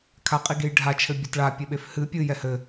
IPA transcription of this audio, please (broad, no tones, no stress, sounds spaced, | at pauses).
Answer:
kʰ a qʼ i ɡ e j ɖʱ a t͡ʃʰ ɘ bʲ a t ɭ a pʲ e ɓ e f h ɨ pʲ ɨ j ɛ h ɘ